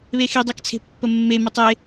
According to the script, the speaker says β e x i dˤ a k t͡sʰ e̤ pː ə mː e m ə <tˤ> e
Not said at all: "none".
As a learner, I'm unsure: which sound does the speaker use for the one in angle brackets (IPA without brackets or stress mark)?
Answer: tˤ